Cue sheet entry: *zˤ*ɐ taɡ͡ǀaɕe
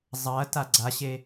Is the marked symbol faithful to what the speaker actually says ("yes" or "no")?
yes